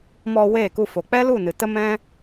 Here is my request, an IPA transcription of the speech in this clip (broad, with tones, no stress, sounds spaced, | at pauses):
m ɔ˧ w eː˦˨ k u˧ f o˨ k͡p ɛ˦ l u˦˨ n ɨ˨ t ə˦ m ɛ̃˦